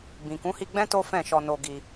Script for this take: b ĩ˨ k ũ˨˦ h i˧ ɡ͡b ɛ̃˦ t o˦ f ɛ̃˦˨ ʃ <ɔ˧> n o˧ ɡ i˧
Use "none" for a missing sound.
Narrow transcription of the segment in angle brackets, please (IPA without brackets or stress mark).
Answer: ɔ˧